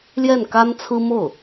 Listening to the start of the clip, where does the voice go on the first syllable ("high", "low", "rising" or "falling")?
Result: falling